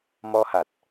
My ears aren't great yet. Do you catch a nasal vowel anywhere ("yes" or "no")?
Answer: no